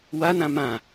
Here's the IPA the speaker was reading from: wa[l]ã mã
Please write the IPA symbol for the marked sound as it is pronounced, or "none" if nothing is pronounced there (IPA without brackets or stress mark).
n